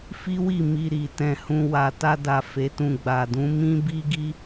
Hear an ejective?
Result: no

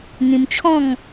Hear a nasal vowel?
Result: yes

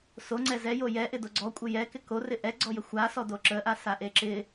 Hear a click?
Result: yes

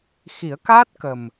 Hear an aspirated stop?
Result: no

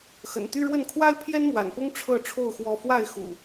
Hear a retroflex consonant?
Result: yes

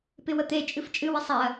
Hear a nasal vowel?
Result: no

